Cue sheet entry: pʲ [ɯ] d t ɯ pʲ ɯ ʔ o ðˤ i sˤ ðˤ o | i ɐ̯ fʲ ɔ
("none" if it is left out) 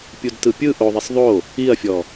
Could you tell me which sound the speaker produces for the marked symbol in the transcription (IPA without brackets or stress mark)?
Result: u